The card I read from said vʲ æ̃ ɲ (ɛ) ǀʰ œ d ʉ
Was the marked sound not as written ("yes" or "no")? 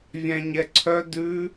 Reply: no